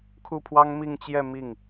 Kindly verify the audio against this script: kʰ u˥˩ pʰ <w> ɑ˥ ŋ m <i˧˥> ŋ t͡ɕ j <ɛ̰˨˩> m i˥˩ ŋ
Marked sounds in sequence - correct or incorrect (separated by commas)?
correct, incorrect, incorrect